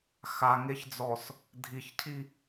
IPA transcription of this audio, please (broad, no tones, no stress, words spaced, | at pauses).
xaŋeçd͡zɔs | dʱiçcʰi